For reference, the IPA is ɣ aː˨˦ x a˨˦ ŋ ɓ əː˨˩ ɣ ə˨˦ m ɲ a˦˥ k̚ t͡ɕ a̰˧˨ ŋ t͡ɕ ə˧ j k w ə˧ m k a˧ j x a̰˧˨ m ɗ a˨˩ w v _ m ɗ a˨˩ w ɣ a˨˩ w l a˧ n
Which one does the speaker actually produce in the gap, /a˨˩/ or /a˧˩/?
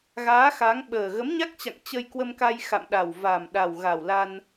a˨˩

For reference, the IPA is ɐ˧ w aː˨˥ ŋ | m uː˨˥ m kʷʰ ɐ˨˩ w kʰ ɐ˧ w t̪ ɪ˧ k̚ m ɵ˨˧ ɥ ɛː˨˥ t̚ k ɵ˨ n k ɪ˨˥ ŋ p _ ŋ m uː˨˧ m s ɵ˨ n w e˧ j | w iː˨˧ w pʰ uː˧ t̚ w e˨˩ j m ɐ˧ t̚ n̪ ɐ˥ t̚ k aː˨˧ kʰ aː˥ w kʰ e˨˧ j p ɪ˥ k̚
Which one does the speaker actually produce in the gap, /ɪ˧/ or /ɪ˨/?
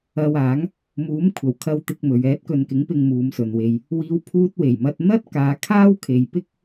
ɪ˧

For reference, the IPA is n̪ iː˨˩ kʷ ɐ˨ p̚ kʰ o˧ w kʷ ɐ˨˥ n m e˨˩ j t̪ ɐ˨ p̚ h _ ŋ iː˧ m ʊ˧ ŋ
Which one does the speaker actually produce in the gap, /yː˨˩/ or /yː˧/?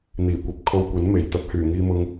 yː˨˩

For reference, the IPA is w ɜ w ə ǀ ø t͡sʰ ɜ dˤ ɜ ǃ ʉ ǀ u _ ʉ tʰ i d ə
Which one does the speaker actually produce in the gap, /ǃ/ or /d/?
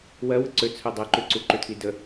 ǃ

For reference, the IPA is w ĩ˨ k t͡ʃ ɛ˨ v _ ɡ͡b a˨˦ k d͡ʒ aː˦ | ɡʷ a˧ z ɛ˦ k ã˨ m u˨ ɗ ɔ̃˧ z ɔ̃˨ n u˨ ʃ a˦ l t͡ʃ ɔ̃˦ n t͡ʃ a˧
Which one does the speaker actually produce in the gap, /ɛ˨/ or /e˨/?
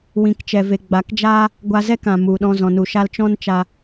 e˨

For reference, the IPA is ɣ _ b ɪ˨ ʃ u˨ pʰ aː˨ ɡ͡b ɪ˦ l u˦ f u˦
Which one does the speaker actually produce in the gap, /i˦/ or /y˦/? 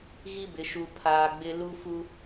i˦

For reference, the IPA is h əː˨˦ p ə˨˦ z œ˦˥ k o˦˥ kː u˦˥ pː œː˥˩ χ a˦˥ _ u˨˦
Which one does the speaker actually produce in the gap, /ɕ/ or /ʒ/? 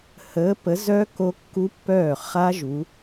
ʒ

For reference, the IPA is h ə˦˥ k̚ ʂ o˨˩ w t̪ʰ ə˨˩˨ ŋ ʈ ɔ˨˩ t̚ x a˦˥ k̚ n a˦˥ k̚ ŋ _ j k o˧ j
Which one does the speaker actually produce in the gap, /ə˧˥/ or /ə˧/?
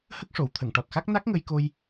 ə˧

